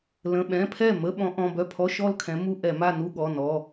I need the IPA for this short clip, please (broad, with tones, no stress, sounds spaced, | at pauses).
l ə̃˩˧˩ ɓ ɛ̃˩˧˩ pʰ ɛ˥˩ m ə˧˥˧ ɓ ɔ̃˨˦ ʔ ɔ̃˩˧˩ b œ˥˩ pʰ ɔ˧˥˧ ʃ ɔ˥˧ l kʰ ɛ̃˨˦ m u˧˥˧ ʔ ɛ˧˩˧ m a˥˧ n u˥˧ ɠ ɔ˩˧˩ n ɔ˩˧˩